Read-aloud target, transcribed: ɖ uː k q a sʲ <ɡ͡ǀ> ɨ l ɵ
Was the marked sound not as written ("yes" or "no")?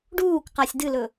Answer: yes